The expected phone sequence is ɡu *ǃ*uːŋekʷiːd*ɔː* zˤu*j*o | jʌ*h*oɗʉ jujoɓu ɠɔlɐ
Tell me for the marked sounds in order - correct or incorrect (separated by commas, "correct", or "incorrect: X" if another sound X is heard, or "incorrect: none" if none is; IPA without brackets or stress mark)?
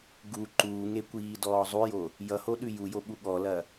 correct, correct, correct, correct